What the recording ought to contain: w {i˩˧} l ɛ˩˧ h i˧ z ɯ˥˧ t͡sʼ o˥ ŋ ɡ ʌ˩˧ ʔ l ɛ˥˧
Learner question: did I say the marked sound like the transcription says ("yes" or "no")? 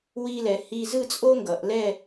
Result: no